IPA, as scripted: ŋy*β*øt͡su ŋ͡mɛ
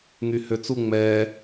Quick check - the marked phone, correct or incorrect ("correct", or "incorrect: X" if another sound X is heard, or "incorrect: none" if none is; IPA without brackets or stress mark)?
incorrect: h